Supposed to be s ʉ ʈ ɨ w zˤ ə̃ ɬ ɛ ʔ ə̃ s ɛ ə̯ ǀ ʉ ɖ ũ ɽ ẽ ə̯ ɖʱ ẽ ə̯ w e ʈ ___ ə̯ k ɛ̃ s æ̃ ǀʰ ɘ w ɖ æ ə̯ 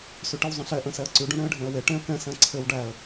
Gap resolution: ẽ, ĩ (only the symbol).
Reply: ẽ